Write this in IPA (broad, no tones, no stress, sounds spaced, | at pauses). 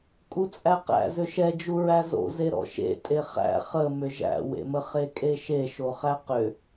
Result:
kʼ u t͡sʼ æ q æ̰ z ʏ ʃ ɛ d͡ʒ u ɹ æ z o̰ z e ɾ ɔ̰ ʃ ḛ tʼ e χ æ̰ χ ə m ʏ ʒ æ̰ w ḛ m ə χ e kʼ e ʃ e ʃ o χ æ q ʏ